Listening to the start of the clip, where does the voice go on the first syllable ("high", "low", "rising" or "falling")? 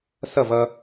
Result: falling